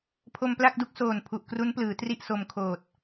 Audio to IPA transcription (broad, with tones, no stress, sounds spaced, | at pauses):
pʰ o˧ m p l a˥˩ k̚ d u˦˥ k̚ s oː˨˩ n pʰ u˨˩ ʔ k r u˦˥ n p l ɯː˩˦ t r i˥˩ ʔ s o˧ m kʰ oː˨˩ t̚